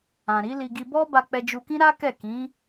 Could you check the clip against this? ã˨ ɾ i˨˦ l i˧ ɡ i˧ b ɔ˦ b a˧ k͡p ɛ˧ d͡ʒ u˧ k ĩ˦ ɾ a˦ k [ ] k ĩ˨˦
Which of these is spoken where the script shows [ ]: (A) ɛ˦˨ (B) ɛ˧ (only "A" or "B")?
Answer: A